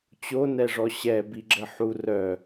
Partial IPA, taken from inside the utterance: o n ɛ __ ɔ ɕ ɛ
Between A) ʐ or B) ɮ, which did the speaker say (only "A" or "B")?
A